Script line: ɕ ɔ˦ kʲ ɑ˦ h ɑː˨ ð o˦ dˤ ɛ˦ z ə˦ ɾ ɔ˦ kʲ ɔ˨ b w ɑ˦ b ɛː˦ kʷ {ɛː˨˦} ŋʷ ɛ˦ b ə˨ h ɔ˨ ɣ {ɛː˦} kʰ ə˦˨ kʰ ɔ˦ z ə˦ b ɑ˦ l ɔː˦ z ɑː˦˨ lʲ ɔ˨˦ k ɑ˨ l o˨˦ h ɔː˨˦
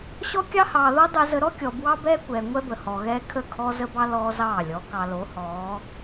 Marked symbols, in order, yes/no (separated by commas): no, yes